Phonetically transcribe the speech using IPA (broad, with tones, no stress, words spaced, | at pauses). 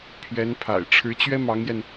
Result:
pʰɥɛ˧˥npʰa̰˨˩ɪ̯ ʈ͡ʂʰɻ̩˧˥t͡ɕɥɛ˥mɑ˧˥ŋjɛ˧n